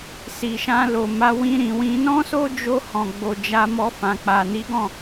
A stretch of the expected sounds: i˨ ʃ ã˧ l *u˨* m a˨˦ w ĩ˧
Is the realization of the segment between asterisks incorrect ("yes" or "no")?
yes